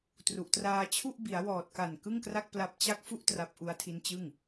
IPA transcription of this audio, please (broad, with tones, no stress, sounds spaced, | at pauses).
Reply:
t r u˨˩ ʔ t r aː˧ t͡ɕʰ u˥˩ ʔ b i˩˦ a̯ w ɔː˨˩ t̚ k a˨˩ n k ɯ˥˩ ŋ k r a˥˩ k̚ p l a˦˥ p̚ t͡ɕ a˥˩ k̚ f u˥˩ ʔ t r a˦˥ p̚ ʔ u˦˥ a̯ tʰ i˦˥ n t͡ɕ ɯ˥˩ ŋ